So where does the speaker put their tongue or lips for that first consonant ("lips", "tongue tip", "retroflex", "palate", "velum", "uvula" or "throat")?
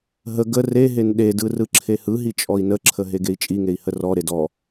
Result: throat